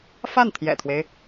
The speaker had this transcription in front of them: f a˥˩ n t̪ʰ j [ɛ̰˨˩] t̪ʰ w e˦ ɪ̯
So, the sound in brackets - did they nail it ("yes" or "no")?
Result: yes